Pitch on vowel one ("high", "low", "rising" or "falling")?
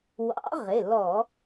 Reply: rising